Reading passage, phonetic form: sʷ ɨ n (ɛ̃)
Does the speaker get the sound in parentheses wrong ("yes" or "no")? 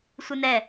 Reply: yes